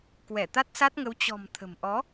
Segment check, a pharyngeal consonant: absent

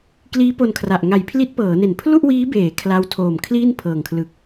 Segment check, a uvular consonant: absent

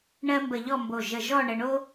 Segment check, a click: absent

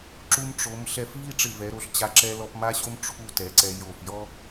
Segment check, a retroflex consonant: present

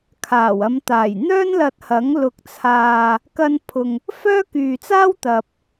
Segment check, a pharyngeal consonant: absent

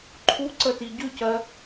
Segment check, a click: present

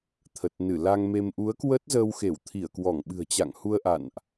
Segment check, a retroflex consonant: absent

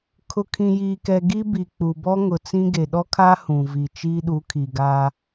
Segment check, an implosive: present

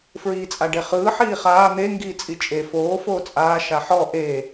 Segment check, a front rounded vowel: absent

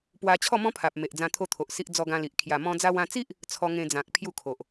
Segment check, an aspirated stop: present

